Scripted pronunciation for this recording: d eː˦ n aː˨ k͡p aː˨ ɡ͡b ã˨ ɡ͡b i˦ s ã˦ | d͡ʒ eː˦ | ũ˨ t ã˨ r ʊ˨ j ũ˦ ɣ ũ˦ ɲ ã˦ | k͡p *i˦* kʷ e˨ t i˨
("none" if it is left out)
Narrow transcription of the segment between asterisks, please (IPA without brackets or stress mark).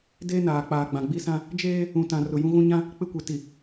ɪ˦